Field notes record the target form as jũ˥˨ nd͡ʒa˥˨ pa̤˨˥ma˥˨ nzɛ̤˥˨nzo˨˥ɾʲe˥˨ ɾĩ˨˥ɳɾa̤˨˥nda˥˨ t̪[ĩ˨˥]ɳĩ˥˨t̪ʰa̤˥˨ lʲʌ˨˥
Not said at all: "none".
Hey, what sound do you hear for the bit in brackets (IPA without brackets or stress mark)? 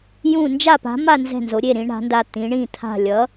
ĩ˨˥